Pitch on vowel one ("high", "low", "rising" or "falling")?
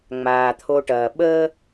low